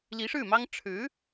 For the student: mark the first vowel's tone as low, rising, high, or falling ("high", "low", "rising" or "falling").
rising